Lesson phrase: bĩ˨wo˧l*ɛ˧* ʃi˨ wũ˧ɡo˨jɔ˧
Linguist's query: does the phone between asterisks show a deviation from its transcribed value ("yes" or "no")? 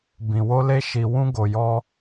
yes